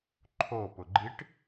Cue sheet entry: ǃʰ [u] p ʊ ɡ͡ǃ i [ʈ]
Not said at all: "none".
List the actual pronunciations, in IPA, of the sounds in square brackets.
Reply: o, ʈ

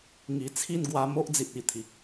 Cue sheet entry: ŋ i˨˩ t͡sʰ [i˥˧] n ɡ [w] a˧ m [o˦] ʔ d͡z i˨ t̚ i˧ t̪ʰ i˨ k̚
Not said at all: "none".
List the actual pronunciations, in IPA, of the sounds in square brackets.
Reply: i˥˧, w, o˦

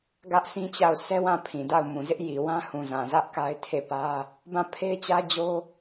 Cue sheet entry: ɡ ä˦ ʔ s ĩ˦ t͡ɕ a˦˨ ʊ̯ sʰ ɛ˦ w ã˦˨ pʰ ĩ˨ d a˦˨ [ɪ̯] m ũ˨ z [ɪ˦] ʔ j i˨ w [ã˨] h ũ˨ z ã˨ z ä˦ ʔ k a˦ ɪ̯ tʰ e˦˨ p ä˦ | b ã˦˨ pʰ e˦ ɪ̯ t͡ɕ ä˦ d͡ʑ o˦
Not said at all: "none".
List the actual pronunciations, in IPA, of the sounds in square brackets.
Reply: ʊ̯, ɪ˦, ã˦

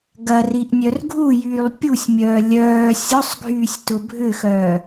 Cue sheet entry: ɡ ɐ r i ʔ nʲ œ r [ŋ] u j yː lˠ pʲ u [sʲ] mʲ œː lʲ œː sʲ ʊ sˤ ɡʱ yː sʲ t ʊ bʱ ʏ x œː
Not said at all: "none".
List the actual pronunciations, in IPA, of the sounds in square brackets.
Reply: ɡʱ, sʲ

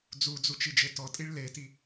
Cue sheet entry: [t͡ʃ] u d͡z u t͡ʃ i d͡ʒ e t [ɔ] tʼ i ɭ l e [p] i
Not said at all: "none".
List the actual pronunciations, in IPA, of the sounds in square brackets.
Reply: d͡z, ɔ, t

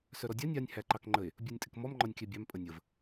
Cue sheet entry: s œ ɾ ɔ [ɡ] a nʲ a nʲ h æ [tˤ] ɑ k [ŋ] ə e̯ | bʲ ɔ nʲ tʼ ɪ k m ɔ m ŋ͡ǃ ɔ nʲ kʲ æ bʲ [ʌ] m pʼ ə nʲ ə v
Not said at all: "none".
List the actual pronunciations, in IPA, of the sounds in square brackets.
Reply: dʲ, ǃ, ŋ͡ǃ, ɑ

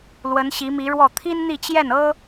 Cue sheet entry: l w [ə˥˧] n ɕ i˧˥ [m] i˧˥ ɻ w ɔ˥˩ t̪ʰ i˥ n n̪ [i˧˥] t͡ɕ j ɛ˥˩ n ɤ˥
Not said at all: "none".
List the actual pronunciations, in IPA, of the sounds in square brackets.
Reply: ə˧˥, m, i˥˧

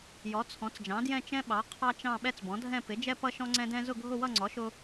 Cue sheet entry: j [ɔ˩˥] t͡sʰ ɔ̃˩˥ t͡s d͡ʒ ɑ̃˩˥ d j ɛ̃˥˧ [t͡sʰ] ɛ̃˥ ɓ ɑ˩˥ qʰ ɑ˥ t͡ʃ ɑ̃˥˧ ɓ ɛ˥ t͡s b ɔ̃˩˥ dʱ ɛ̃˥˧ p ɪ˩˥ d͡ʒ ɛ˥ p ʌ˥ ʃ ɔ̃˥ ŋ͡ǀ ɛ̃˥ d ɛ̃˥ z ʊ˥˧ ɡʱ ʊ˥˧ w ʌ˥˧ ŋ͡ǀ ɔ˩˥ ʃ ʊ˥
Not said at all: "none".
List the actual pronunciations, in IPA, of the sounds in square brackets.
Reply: ɔ˩˥, t͡ʃ

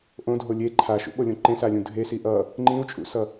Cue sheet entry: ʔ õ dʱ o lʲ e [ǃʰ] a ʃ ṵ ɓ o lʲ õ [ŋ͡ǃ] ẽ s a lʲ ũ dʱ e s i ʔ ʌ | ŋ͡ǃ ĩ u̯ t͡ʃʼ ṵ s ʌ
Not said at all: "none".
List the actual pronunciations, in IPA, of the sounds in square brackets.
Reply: ǃʰ, ǃ

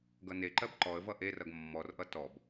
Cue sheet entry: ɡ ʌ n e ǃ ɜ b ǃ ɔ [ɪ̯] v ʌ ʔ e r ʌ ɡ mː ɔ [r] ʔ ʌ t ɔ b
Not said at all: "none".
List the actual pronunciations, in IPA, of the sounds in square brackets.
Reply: ə̯, r

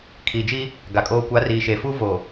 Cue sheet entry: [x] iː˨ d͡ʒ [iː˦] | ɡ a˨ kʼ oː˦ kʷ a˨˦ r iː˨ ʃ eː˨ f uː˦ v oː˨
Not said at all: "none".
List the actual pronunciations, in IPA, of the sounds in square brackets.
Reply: kʰ, iː˦

